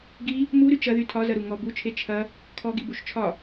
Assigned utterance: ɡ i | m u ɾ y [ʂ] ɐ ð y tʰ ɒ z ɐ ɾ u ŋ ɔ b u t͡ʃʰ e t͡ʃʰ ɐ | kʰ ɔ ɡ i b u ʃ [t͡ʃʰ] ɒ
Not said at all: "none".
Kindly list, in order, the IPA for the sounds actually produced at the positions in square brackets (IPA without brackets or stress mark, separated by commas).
t͡ʃ, t͡ʃʰ